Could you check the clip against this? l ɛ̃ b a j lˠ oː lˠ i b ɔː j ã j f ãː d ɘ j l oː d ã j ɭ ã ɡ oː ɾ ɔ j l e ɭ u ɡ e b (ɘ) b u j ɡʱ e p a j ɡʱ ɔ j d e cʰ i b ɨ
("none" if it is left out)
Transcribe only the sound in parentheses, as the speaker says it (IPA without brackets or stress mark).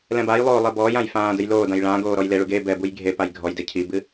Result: ɛ